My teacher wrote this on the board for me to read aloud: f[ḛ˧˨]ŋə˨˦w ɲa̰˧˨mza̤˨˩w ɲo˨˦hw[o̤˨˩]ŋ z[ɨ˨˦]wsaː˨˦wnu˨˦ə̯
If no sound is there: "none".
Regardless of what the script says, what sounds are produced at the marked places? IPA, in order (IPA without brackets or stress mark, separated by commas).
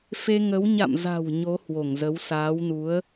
e˧, o˧˩, ə˨˦